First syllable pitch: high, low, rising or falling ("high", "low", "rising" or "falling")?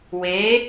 rising